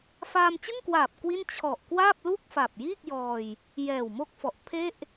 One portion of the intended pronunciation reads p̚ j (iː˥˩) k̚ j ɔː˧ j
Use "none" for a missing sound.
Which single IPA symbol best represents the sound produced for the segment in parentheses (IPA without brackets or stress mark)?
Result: iː˥˩